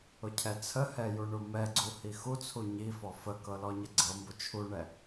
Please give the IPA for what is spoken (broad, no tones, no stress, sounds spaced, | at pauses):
ʊ cʰ ɛ t͡sʰ ə h ɛ j u ɳ u m ɛ ɡ͡ǀ u h i x u t͡sʰ u ɲ i f ɔ f ə k ɤ l ɔ ɲ ə ɡ͡ǀ ɤ m b ʊ t͡ʃʰ u ɳ ɛ